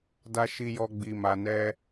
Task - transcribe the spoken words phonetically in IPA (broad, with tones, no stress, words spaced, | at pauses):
da˧ʃi˧jɔ˧ ɡ͡bi˨ma˨nɛ˧